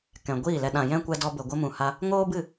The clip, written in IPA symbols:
kɛ̃˨ɡʷiː˦˨lɛ˧ ɗã˨jɛ̃˦ kʷɛ˧dɔ˧bə˨ ɡʷə˧mũ˨ ha˧ | ŋoː˦bɨ˦˨

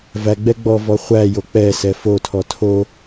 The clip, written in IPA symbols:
væɡ͡bɛ ɡ͡bɔvɔ χʷæjo k͡pɛsɛ fotʰɔ tʰo

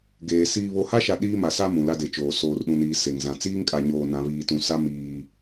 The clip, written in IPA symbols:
ɡeː˨ siː˨βo˨ha˦ʃa˨ ɗiː˦ma˨sa˦ mũ˨la˦de˨t͡ʃoː˨ soː˨rɗũ˨niː˨ se˨ŋzã˨ t͡siː˦ŋkʼa˨ɲoː˨nã˨ βiː˨tũ˨sa˦ miː˦

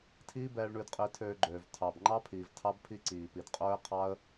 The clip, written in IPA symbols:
tʰiː˦bɛː˧ɭ ɳʉ˧dqʼi˧ tʰøː˧ɡ͡ǃøː˨v tʰɑ˨bŋ͡ǃɑ˦pʰiː˨v tʰɑ˦bpʰi˦ǀiː˨pi˨d qʼɵː˦ɪ̯qʰɑ˦ə̯

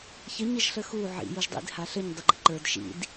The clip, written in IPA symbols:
çə ɲəʒɬəxu ʕḭ juʒdˤḭd haɬəɲ dˤuɡ͡ǃḭǃə˞d ʃḭd

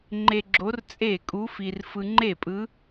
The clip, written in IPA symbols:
ŋ͡ǃe˧ɡ͡ǁo˧˥r t͡sʼe˥˩kʼu˧˥fi˧r fɯ˧ŋ͡ǃe˥˩pʼɯ˧˥

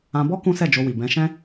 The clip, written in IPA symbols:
ã˧bɔ˦ kũ˦sɛ˦˨d͡ʒo˧wi˨ bɛ̃˨˦ʃɛ̃˦

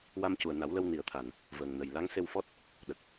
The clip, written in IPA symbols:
wa˧mcu˨˩ə̯na˨˩˦wlə˧w ni˨˩ə̯t̪ʰa˨˩n | vəː˨˩ŋnə˨˩j la˧˥ŋse˧wfɔ˦˥t̚ | ɗə˨˩k̚

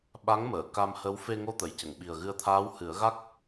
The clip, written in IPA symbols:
ɓa˧˥ŋməː˨˩˨ ka˧mhə˧˥w fe˧ŋo˧t̪ə˨˩˨jcə˨˩˨ŋ ɓi˨˩ə̯ɣɨ˧ə̯t̪ʰaː˧˥w hɨ˨˩˦ə̯ɣa˦˥k̚

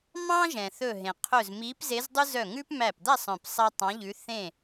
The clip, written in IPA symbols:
mɑ̃˦ ʒɛ̃˩θɵ˧˩ɦẽ˩qʰɵ˧˩z mi˨˦pze˨˦zdˤʉ˦ zœ˧˩ŋʉ˦pmæ˧˩pd̪æ˥˨sˤ œ̃˧˩psˤɛ˦ tˤɑ̃˨˦ʎʉ˨˦ θẽ˥˨

